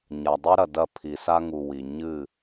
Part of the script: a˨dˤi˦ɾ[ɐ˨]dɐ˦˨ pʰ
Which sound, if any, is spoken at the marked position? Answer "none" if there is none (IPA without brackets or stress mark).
ɐ˨